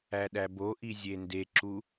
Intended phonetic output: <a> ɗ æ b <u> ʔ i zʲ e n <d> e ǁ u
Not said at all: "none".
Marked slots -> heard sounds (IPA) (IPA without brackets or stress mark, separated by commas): æ, o, d